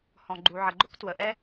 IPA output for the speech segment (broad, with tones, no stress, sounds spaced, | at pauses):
h ɔ̃˨ ɡ͡ǃ u˨ ʕ ə˨ ɡ͡ǃ ʊ˦ k t w ə˨ ʔ ɛ˦